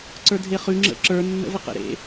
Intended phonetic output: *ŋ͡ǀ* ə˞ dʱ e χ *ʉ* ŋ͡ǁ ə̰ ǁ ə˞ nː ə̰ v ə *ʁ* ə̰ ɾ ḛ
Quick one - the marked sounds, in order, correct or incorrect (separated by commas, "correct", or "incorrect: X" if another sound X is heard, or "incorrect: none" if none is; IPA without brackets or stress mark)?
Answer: incorrect: ǀ, correct, incorrect: q